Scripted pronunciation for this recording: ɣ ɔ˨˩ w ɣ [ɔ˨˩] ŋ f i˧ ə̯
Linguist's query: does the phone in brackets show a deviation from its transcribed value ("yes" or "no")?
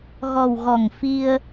no